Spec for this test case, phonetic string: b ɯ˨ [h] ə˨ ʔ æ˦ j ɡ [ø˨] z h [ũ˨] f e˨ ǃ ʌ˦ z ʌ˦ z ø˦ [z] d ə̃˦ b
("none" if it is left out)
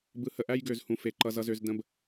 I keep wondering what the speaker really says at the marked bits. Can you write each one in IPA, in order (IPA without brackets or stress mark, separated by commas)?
h, ø˨, ũ˨, z